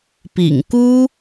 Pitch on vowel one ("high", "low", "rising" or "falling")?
low